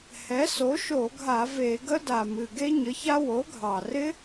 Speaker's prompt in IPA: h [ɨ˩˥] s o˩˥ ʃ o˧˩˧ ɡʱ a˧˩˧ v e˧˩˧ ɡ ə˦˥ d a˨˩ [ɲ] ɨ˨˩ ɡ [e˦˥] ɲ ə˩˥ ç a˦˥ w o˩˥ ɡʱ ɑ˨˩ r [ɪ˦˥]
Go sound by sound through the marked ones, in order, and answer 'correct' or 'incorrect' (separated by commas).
incorrect, incorrect, correct, correct